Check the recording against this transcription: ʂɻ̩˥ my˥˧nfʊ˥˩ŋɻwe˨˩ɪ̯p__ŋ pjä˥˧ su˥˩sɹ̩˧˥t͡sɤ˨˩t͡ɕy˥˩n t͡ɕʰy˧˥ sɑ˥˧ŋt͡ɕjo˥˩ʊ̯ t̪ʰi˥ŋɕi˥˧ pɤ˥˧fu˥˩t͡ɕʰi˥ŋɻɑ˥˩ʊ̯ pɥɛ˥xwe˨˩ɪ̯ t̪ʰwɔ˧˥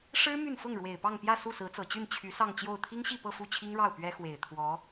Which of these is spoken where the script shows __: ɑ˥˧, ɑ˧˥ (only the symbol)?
ɑ˥˧